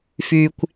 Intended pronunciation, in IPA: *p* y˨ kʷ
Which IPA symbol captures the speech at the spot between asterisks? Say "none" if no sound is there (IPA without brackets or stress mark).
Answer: f